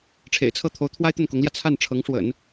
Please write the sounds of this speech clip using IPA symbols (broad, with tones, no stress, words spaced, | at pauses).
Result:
ʈ͡ʂʰḛ˨˩ɪ̯t͡sʰɤ˥˩ t̪ʰo˧˥ʊ̯ t̪ʰwa˥ɪ̯t̪ə˥˩nkʊ˧˥ŋljä˧ t͡sʰa˥˩nʈ͡ʂʰɤ˧˥ŋ ʂwə̰˨˩˦n